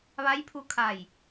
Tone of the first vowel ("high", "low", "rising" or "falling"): rising